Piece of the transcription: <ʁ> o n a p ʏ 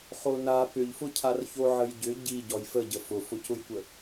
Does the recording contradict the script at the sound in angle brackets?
yes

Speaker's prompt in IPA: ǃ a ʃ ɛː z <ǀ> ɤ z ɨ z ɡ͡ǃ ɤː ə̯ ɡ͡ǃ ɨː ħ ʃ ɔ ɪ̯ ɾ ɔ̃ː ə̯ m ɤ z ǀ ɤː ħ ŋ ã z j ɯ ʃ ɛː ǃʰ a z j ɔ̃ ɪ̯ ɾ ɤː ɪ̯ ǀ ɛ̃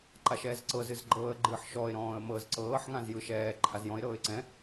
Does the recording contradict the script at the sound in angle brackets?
no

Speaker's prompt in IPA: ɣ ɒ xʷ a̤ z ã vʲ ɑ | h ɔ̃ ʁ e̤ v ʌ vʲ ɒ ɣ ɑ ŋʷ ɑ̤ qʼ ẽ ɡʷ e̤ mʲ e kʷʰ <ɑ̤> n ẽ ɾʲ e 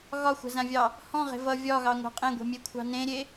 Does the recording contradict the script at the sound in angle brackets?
no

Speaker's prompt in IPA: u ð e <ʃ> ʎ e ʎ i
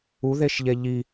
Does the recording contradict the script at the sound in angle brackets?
no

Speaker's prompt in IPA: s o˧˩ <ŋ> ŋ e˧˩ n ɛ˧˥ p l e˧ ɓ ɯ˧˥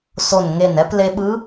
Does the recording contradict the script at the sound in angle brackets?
yes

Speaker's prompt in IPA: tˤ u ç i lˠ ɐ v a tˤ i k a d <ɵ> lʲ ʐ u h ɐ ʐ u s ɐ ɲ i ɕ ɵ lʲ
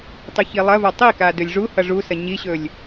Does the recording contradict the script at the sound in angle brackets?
no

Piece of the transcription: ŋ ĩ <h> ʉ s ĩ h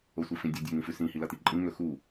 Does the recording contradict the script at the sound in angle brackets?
yes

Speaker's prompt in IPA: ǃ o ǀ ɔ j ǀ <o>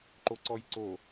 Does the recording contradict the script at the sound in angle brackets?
no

